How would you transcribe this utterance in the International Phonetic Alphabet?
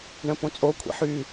ɳə̃põt͡sʼokʷʰḭ ħy

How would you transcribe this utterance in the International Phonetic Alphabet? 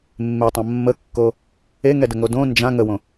mːetˤã mːəkːo | eŋɛdə ŋodõ nd͡ʒã ŋəwõ

